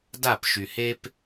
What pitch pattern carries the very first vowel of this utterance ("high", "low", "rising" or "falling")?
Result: falling